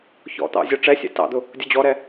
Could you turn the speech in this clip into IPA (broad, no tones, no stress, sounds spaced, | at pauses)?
ç ɔ̰ t̪ ɑ̰ zʲ ɔ ʈ͡ʂ ɛ sʲ ɛ̰ t ɑ̰ d̪ ʊ | dʲ ʊ d͡ʑ ɔ ɾ ɛ